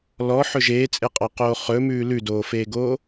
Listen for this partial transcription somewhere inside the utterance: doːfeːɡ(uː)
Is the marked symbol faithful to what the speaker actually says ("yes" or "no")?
no